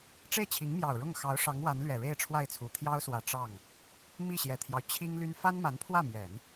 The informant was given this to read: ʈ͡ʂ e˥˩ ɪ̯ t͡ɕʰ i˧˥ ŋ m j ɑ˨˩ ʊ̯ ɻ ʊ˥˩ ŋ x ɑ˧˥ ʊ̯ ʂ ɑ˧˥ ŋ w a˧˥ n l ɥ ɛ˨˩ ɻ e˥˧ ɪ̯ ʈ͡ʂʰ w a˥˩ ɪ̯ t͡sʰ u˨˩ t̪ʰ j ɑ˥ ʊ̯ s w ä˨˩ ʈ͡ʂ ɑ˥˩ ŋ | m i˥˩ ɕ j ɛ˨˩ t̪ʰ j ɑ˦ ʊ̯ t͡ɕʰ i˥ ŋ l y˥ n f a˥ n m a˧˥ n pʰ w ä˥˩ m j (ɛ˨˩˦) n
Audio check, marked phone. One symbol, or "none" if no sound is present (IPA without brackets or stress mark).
ɛ˨˩˦